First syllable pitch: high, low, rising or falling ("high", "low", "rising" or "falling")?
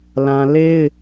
high